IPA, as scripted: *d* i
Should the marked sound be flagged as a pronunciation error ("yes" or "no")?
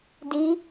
no